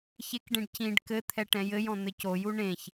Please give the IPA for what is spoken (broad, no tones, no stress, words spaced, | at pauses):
çekɖẽɖ cĩɖ kɘ t̪ʰɛʈɛ̃jɘjɔ̃ n̪ɘcoju ɳẽç